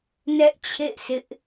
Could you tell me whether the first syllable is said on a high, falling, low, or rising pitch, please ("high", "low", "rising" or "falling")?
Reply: high